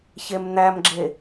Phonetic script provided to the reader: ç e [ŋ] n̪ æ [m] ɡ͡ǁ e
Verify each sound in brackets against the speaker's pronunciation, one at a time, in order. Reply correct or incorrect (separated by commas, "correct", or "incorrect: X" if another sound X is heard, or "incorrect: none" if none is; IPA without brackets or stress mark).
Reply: incorrect: m, correct